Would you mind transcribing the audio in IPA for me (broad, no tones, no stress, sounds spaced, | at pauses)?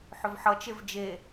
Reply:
ħ ʏ v ħ ʌ t͡ʃ e v d͡ʒ e